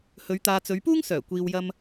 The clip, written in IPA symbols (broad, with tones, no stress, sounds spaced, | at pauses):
h ɵ˨˧ ɥ t̪ aː˨ t͡s ɵ˨˧ ɥ p uː˥ ŋ s œː˨˩ kʷ iː˨ w j ɐ˧ m